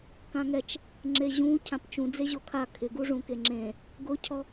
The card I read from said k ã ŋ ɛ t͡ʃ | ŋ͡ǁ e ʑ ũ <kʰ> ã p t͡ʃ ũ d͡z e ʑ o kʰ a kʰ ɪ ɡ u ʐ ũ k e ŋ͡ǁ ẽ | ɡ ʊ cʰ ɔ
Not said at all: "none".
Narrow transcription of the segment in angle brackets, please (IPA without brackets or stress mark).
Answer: cʰ